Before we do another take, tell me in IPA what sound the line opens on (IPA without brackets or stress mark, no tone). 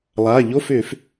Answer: lˠ